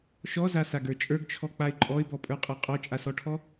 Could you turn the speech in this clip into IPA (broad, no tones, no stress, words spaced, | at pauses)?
ʃɔzasaɡə˞ t͡ʃʼə˞ɡt͡ʃʰɔk͡paɪ̯ ǃʼɔɪ̯bɔpʼə˞qʼa qʼɔt͡ʃʼasɔʈʰɔ